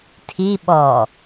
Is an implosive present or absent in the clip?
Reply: present